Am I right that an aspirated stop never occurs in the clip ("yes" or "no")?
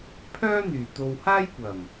no